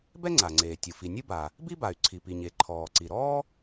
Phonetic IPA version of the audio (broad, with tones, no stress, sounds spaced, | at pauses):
b ɛ˥ ŋ͡ǀ a˩ ŋ͡ǀ eː˩ tʲ ɯ˩ f i˩ nʲ ɯ˥ b a˩ | b i˥ b a˩ y̯ ǀʰ i˩ p i˩ ɲ e˩ ǃʰ ɔː˩ ǀ i˩ ɾ ɔː˥